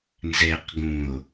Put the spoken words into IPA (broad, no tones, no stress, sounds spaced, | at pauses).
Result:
n z ɛ q ɡ ũ o̯